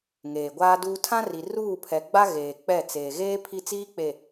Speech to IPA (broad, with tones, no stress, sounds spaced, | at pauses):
ŋ eː˨ ɡʷ aː˦ d uː˦ tʰ ã˦ r i˨ r uː˦˨ pʰ ɛ˨ ɡ͡b a˦ ɣ eː˨ k͡p ɛ˦˨ t͡s eː˨ ɣ eː˦ pʰ i˦ t͡s iː˦ k͡p e˨